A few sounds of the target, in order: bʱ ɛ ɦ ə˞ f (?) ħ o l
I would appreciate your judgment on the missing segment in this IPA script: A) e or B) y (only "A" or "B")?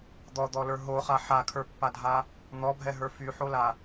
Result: B